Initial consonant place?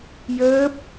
palatal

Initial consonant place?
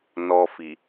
alveolar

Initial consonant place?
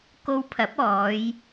velar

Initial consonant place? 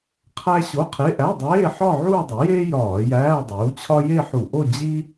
uvular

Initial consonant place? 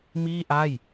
labial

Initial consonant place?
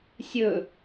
alveolar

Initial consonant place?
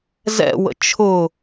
alveolar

